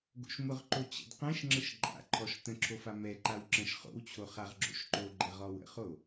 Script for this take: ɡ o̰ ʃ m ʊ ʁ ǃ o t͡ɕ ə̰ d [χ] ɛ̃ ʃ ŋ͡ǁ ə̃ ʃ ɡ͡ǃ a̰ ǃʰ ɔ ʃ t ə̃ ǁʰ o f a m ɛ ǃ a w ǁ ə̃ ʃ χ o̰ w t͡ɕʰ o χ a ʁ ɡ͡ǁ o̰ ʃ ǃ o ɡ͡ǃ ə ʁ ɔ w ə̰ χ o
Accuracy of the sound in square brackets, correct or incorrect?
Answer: incorrect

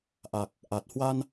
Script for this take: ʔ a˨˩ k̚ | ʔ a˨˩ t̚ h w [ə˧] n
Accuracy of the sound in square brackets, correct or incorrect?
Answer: incorrect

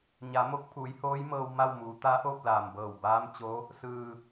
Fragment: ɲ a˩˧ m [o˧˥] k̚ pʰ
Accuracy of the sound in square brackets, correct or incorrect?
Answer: correct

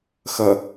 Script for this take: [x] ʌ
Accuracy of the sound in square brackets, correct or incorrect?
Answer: correct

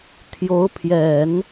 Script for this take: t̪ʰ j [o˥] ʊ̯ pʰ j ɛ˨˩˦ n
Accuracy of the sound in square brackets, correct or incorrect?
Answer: incorrect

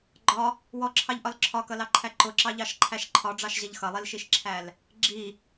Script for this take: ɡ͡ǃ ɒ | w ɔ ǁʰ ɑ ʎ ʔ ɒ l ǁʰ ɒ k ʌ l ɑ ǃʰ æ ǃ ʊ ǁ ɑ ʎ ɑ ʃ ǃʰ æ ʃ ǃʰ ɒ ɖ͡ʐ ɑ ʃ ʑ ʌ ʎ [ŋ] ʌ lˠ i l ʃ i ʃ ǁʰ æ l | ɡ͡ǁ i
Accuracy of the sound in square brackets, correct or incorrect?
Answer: incorrect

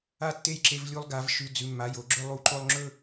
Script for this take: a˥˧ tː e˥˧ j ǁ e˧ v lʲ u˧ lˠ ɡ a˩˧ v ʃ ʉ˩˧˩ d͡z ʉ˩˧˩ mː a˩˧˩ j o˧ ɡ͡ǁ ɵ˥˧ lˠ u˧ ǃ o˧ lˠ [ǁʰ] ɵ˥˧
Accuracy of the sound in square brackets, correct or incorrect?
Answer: incorrect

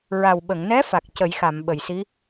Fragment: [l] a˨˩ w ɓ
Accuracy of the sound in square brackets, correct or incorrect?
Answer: incorrect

